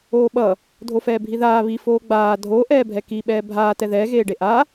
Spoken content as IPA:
oː ɓ ʌ | dʱ o f ɛː bʱ i ð aː β i f oː ɡ͡b aː dʱ o ʔ ɛː bʱ ɛ k i ɓ ɛː bʱ aː t ɛ ð ɛː ɣ eː ɖ e ʔ a

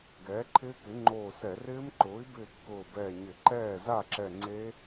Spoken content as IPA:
ɡ ɛː˩˥ ǃʰ ɪː˦˥ k ɪ˩˥ ŋ͡ǃ oː˧˩ s ɛ˧˩˧ r ɪː˦˥ m ǃ ʊː˩˥ i̯ b ɪː˧˩ kː ʊː˧˩ b ɛː˧˩ ɲ ɪ˧˩˧ ǃ ɛː˥˩ z a˥˩ ǁ ɛ˧˩ ŋ͡ǀ e˦˥

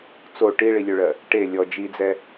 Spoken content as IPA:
t͡s o ʈ i ɭ i lʲ ø ɭ ɜ | ʈ e lʲ ɔ d͡ʒ i d͡z ɛ

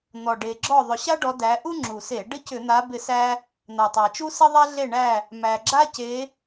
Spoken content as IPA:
n̪ ɔ˨˩ ɖ e˨˩ ɡ͡ǁ ɔ˦˨ ðˤ ʏ˨˩ ɕ a˥ ɖ ɔ˨˦ d æ˨˦ ʔ u˥ ŋ͡ǁ u˨˩ s e˧˩˧ ɖ ɪ˥ c ʏ˧˩˧ n̪ a˨˦ b ɪ˦˨ s æ˥ | n̪ a˨˩ tˤ æ˨˩ t͡ʃ u˥ s ɪ˥ ðˤ a˥ ɮ e˦˨ ɳ æ˦˨ | m æ˨˩ ɡ͡ǁ a˥ c e˨˦

